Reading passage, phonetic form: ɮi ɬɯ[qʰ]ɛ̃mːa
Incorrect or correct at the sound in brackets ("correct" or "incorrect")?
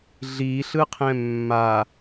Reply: correct